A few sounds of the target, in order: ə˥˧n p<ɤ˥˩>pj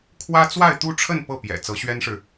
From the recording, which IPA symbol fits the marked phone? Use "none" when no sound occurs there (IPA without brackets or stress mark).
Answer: ɤ˥˩